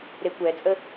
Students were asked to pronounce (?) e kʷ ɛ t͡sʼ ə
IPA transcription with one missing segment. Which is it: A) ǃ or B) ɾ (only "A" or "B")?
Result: B